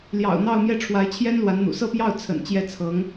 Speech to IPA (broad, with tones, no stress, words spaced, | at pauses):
ljɑ̰˨˩ʊ̯n̪ɑ˥˧ʊ̯mjɛ˥˩ ʈ͡ʂʰwa˧˥ɪ̯t͡ɕʰjɛ˥nlwa˧˥nn̪ṵ˨˩ sɤ˥˧pjɑ˥˩ʊ̯ t͡sʰə̰˨˩n t͡ɕjɛ˥˩t͡sʰɤ˧˥ŋ